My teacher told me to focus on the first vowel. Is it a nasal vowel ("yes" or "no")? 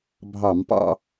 no